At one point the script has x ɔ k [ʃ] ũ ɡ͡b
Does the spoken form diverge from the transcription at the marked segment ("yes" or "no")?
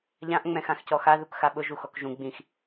yes